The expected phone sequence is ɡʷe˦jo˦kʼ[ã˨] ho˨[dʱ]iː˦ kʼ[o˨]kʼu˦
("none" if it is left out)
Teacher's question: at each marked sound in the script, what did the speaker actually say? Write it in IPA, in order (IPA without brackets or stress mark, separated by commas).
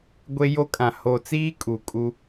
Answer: ã˨, t͡s, u˨